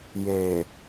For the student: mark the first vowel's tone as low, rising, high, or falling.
low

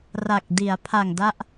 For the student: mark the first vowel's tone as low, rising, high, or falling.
low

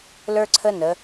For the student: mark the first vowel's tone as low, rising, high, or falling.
high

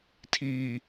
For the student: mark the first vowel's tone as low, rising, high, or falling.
low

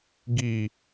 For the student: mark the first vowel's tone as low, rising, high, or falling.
low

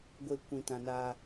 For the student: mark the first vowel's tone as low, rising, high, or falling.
low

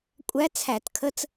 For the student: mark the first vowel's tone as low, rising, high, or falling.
rising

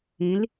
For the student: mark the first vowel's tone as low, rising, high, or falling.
rising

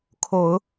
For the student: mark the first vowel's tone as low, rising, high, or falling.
low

